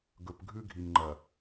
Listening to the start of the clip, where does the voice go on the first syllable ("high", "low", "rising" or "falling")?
low